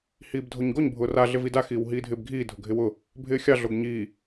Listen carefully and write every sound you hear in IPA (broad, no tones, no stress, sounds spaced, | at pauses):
h iː b dʱ o ɲ ɡ o ɲ bʱ ʊː r a ɮ ɪ v i d a x iː w ɦ iː dʱ ɪː b ɡʱ iː dʱ ʊ ɡʱ ɪ w ʊ | bʱ ɪː xʲ ɑ ɮ o ɡ ɲ iː